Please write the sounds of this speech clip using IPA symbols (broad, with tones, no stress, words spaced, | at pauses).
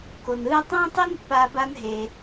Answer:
ko˧n ɯː˥ tˤã˥tˤi˥npːaː˧ ba˥nɦe˧